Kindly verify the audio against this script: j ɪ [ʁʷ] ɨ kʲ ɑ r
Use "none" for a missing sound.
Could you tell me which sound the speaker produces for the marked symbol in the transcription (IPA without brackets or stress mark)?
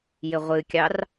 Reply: ʁʷ